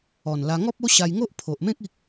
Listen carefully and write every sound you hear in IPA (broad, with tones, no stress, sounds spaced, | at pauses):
ɔ˨˩ n l a˧ ŋ ɔ˦ p̚ o˦ ɕ a˧ j ŋ o˦ ʔ pʰ o˨ ʔ m ẽ˦ k̚ i˦ k̚